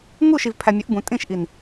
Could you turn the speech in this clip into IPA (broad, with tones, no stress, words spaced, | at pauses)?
ŋu˦˨ʃi˨v pʰæ˨mʲʊ˨˦ʔbũ˨ tʼĩ˦˨ʃʔi˨n